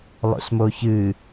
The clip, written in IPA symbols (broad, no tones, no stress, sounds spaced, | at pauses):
lˠ o̰ s m o ç ɨ